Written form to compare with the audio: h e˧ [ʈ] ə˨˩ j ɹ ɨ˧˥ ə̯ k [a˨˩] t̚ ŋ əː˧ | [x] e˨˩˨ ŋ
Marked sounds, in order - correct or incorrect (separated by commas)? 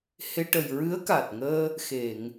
correct, correct, correct